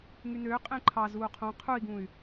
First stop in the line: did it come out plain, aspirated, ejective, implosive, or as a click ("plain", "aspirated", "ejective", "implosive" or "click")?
ejective